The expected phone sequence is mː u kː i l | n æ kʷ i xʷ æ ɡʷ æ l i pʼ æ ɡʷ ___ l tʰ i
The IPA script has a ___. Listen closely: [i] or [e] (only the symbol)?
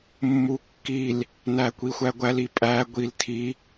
i